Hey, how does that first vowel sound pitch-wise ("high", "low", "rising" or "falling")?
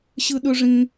high